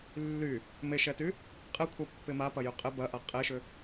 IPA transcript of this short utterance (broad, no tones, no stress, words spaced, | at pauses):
lːy | meʃɛty | qʼɪkʷʰapːɪ mapɐjy qʼɪ bɐʔa qʼeʃʏ